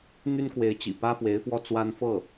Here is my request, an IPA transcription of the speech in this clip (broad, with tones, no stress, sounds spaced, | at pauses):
n̪ y˥ n k w e˧˥ ɪ̯ t͡ɕ ḭ˨˩ p ä˥ f w e˧˥ ɪ̯ f w ɔ˥˩ t͡s w a˥ n f ɤ˥˩